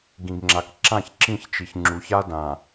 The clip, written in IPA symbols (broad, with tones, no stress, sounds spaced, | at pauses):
ɡ ĩ˨ ɡ ŋ͡ǁ a˨ k ǁ ã˦˨ ç ǁ ĩ˦˨ ç t͡ʃ i˨ ç ŋ͡ǁ u˨˦ ç a˦ d ã˨